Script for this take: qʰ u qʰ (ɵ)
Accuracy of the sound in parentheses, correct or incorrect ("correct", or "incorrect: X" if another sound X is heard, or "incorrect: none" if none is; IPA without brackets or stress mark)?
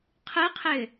incorrect: ø